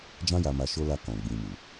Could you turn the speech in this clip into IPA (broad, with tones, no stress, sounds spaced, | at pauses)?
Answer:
d͡ʒ ã˦ j a˧ m a˧ ʃ o˧ l a˧ k ɔ̃˨ ɡ͡b ĩ˨ m u˨